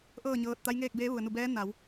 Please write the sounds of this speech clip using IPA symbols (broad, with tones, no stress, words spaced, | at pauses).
ʔɤː˥˨ɲɤː˧t̚ t̪a˧˥jŋeː˥˨k̚beː˧˥ ʋu˩ə̯nu˧˩bɛː˧˥ na˩˧w